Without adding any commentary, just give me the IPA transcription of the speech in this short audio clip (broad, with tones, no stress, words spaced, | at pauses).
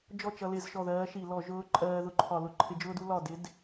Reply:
d͡ʒɔ˥˩t͡ʃʌ˧lɪ˧˩˧zʃɔ˧˩ ðɜː˧˥ʃi˧˩˧ lɔ˧˩˧ ʒʊː˧˥ǃʼɜː˧ ðʊ˧˩˧ǃʰɒ˧˩˧ lʊ˧˩˧ǃʰɪ˧˥d͡ʒʊː˥du˥ lɒ˧˩dɪ˧˥d